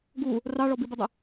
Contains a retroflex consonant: yes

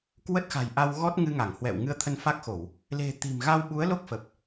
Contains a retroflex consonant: no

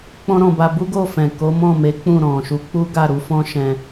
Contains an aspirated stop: no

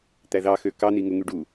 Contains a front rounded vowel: yes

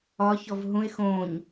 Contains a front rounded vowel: no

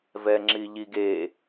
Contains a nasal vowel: no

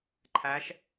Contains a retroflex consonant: no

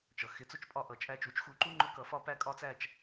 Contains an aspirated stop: no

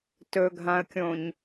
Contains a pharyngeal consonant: no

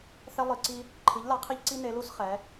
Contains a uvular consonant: yes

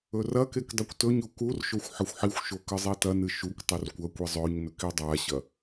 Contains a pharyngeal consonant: yes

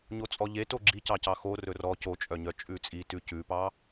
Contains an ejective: yes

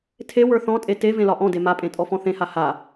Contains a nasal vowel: yes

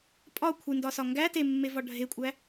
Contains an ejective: yes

